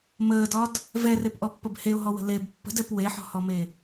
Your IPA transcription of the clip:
m əː d ɒ d | v ɛ r e p ʔ ɔ pː ə b h e ʊ̯ ɦ ɔ w ə̤ l e b pː ə̤ d ɛ p w e ħ ɔ̤ h ɔ m e

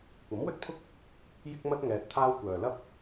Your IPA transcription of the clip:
kʷ ɐ˨˥ m w ɵ˥ t̚ pʰ ʊ˥ k̚ | j ɪ˥ k̚ m ɐ˥ t̚ ŋ ɛː˧ t̚ t̪ʰ aː˥ w kʷ œː˨ l ɐ˥ p̚

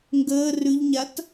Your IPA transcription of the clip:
ŋ ɡ əː r ʉ ʎ ɲ a t

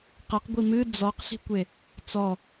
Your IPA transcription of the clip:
q ɛ q ɡʷ i m ɨ d͡z ɔ q ɬ i̤ kʷ e | t͡s ɔ

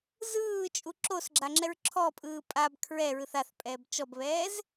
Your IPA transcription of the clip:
z ɯː t͡ʃʼ u ǁ o s ɡ͡ǁ a ŋ͡ǁ ɛ ɹ ǁʰ ɔ pʼ ɯː pʼ a b kʰ ɹ ɛ ɹ ɯ θ a θ pʼ ɛː b t͡ʃ ɔ b β ɛː z

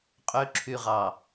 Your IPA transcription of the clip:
qʼ ø ǁʰ y ʁ ɑ

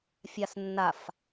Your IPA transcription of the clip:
fʲ a s nː a f

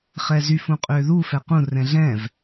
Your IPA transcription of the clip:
χ ɛ z y f ũ qʼ ʏː ð u f ɛ q ũ r ɛ̃ ɮ ɛ̃ v

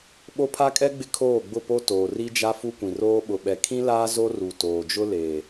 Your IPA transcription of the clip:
ɓ o˦ pʰ a˦ kʼ ɛ˦ ɡ͡b ɪ˦ kʰ oː˦˨ ɡ͡b ʊ˦˨ p o˦ t oː˨ r i˦ d͡ʒ a˦ f u˦ kʷ ĩ˨ r oː˦ ɓ ʊ˨ ɓ ɛ˨ kʰ ĩ˦ l aː˦ z o˦ r u˨ t oː˨ d͡ʒ ʊ˦ l eː˨

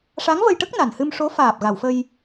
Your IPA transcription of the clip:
ʂ a˧˥ ŋ v ə˧ j ʈ ə˦˥ k̚ n a˨˩ n h ɨ˧ m ʂ o˧˥ f aː˨˩ p̚ ɣ a˨˩˨ w f ə˧ j

